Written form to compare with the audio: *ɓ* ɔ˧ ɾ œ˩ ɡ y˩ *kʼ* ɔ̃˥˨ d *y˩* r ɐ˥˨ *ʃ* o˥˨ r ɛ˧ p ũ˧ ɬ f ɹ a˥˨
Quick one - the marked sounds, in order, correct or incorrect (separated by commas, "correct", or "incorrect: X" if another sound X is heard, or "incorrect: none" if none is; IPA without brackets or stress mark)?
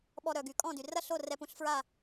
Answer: correct, correct, correct, incorrect: ɬ